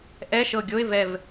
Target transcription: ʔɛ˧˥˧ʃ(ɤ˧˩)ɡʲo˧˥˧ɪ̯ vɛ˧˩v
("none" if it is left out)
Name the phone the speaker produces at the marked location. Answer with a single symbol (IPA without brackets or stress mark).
ɤ˧˩